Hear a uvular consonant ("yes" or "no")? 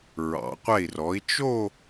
yes